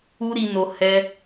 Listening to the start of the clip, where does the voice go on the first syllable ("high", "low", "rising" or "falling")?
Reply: high